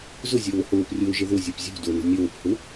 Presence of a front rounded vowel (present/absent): absent